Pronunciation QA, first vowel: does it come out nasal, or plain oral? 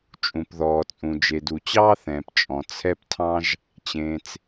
nasal